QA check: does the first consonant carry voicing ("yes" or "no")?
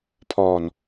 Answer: no